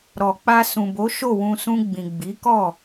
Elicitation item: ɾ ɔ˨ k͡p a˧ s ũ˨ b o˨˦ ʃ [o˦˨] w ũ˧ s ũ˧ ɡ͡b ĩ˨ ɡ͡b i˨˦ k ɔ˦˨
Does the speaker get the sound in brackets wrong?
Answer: no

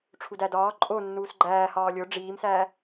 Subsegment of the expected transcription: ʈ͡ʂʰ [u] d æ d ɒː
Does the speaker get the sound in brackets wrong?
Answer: no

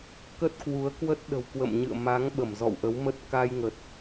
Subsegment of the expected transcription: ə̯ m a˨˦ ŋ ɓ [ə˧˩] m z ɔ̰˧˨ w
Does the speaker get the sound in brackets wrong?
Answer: no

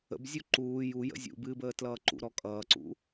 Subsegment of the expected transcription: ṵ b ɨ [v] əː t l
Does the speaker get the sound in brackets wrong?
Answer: yes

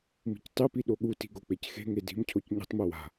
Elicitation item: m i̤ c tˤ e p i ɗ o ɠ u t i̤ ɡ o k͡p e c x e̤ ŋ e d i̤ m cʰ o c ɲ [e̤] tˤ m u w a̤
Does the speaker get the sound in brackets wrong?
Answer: yes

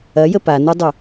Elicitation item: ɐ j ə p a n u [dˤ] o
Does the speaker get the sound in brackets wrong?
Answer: no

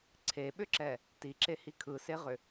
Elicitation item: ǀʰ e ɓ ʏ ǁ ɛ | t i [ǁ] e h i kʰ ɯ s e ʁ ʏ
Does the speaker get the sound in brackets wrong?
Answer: no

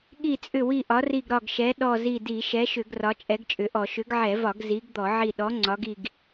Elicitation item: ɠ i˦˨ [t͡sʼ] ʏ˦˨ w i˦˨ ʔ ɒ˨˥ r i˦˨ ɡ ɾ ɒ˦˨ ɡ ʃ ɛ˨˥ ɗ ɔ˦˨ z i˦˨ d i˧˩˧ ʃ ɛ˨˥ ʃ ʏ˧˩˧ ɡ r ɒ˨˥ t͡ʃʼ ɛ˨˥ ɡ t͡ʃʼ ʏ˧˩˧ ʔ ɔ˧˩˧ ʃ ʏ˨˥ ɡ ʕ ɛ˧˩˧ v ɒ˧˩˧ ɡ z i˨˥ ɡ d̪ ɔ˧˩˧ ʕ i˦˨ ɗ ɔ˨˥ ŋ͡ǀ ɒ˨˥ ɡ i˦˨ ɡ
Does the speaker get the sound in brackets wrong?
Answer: no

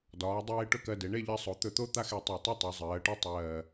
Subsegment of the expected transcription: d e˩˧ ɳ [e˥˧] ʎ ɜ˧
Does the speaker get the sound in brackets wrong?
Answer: no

